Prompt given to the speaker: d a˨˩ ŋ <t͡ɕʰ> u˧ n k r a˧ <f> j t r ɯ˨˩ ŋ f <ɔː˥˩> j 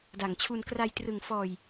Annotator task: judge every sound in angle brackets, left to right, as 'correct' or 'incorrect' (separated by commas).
correct, incorrect, incorrect